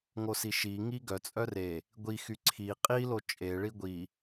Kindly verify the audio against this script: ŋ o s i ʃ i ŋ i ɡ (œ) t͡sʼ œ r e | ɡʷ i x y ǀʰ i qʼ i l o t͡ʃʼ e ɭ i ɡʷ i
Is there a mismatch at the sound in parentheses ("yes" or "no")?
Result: no